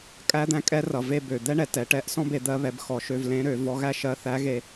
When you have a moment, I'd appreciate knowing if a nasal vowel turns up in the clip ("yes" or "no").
yes